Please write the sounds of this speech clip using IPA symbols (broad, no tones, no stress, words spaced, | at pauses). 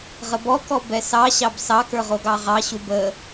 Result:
ʁəbɔkɔ bɛsɑɕɑb sɑkə˞ ʁoɡɑʁɑɕu bə